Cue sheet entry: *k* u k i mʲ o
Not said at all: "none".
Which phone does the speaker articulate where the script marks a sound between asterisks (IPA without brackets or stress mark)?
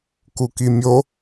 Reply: k